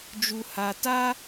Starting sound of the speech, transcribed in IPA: d͡ʒ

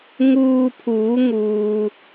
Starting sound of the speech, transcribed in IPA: ŋ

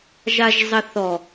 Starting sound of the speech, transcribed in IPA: ʒ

